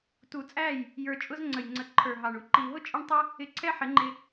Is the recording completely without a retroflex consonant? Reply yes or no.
no